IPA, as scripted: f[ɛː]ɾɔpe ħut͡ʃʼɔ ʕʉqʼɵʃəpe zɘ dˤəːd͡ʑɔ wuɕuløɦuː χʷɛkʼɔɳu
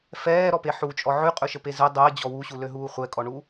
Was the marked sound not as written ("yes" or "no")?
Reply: no